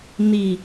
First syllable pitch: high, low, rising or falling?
low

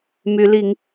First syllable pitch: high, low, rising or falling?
rising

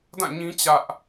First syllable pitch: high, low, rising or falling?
falling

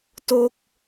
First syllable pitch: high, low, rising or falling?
falling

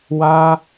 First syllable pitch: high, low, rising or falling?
high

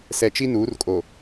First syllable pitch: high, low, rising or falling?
low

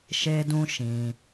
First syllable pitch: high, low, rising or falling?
high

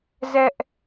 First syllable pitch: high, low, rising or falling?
high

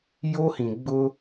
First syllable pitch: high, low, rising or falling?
high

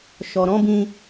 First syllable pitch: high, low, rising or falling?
low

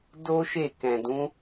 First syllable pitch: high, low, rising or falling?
high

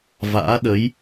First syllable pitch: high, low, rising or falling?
rising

